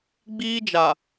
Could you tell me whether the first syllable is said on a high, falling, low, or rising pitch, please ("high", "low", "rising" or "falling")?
high